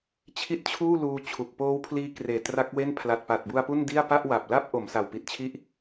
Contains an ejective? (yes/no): no